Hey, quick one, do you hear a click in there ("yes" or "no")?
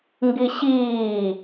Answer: no